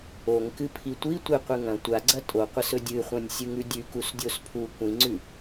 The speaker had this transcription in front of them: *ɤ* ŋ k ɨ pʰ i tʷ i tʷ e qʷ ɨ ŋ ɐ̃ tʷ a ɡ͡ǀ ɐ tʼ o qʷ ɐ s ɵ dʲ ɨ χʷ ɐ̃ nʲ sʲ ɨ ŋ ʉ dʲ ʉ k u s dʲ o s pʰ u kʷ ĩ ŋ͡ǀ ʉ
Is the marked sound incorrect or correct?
incorrect